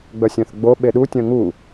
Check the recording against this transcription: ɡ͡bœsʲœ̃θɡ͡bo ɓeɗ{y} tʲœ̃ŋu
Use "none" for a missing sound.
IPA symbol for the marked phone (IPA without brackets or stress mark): u